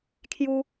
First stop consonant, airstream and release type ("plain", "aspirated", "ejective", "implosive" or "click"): aspirated